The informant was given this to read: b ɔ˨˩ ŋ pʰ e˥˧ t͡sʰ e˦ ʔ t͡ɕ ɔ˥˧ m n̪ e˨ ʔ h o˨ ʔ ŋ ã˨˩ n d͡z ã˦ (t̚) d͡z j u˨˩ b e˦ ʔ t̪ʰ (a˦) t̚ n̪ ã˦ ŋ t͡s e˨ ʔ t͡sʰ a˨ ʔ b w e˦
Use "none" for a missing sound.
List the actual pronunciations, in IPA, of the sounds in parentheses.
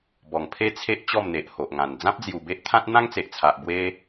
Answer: p̚, ã˦

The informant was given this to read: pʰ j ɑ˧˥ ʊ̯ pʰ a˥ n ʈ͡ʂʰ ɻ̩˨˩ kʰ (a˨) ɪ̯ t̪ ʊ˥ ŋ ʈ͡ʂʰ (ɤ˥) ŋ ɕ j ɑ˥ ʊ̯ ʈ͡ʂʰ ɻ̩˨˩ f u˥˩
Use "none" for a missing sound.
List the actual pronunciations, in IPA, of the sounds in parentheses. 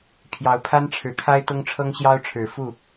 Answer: a˥, ɤ˥

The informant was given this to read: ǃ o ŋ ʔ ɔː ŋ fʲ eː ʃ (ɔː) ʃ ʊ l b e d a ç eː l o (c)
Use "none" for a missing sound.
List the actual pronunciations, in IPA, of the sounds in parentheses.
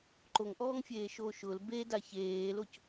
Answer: oː, c

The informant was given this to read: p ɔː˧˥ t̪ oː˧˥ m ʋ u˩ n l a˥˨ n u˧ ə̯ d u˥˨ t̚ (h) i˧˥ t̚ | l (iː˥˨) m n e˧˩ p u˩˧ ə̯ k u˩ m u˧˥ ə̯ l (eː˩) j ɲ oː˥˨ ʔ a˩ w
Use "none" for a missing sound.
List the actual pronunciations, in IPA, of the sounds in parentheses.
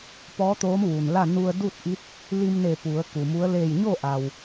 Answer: ʔ, iː˧, eː˧˩

